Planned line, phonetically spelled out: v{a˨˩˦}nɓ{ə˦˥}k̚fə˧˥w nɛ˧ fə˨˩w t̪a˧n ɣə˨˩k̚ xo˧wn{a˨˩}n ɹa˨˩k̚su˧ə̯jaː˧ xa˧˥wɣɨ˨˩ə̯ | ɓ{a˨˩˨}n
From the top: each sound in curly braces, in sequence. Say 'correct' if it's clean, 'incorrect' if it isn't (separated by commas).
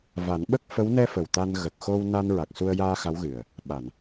correct, correct, incorrect, correct